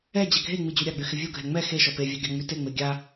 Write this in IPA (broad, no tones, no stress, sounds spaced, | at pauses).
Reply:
ɛ d͡ʑ ɛ ɡʱ e ŋ͡m i d͡ʑ y ɾʲ a ɡ͡b y x ɪ vʲ u ɡʱ ɛ ŋ͡m ɛ x e ʃ ɔ p e vʲ a ɡʲ ɑ ŋ͡m y t e ŋ͡m e ɡʲ a